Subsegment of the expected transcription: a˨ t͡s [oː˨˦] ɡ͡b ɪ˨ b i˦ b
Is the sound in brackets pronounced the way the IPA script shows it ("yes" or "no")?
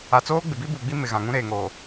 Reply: no